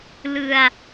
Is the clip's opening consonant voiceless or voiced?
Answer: voiced